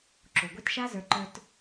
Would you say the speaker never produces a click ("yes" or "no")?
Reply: no